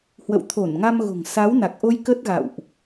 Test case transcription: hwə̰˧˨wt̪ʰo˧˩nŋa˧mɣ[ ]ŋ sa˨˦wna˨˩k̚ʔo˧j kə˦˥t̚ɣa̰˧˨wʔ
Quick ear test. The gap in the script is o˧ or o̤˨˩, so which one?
o̤˨˩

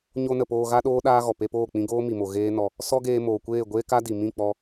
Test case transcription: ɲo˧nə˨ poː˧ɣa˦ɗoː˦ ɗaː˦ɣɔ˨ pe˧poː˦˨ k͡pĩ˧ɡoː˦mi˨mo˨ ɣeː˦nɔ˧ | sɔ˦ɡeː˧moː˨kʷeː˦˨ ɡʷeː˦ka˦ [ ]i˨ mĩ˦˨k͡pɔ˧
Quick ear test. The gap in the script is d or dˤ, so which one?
d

